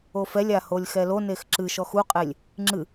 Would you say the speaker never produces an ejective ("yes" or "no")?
no